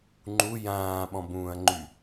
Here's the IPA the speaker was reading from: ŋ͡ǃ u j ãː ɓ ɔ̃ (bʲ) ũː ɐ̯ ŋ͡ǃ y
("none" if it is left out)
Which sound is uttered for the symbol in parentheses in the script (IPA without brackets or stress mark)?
b